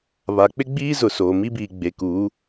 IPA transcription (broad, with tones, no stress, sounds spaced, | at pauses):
β a˨ k͡p ɪ˦ ɡ͡b iː˦ z ʊ˨ s oː˨ m i˦ b iː˨ ɡ͡b e˨ k uː˨˦